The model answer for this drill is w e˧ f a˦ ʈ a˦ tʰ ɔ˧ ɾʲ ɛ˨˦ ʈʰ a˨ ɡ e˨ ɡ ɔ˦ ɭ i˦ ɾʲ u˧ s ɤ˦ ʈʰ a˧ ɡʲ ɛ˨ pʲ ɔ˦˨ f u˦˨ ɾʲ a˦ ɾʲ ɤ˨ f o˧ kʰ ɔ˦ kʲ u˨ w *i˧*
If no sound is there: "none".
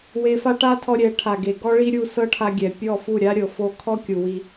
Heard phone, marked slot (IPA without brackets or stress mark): i˧